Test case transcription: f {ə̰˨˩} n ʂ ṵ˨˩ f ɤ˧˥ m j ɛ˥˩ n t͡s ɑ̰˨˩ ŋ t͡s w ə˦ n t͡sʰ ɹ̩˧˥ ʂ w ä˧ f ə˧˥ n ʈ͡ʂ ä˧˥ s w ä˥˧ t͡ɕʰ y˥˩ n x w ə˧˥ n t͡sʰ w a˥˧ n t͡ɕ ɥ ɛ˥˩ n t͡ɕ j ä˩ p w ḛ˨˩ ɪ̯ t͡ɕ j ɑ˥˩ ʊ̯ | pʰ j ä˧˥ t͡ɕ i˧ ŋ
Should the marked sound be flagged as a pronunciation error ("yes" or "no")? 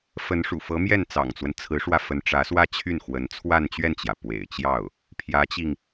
yes